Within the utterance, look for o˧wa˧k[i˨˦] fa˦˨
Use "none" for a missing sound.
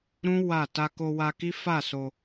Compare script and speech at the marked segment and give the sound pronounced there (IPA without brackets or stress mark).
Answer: i˦